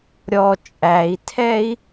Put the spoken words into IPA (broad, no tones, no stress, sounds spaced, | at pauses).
ɾʲ ɔ t͡ʃʼ æ i̯ tʰ ɛ i̯